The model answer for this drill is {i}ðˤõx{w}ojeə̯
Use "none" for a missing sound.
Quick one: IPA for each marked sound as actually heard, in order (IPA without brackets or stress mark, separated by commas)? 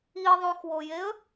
i, w